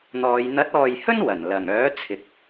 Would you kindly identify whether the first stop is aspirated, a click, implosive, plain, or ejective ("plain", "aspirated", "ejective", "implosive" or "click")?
plain